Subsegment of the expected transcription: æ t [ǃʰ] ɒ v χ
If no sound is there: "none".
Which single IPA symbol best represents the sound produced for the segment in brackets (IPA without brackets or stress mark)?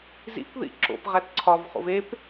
ǀʰ